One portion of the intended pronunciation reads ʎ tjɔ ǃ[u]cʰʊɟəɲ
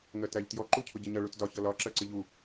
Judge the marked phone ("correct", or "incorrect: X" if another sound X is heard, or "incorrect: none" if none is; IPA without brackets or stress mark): correct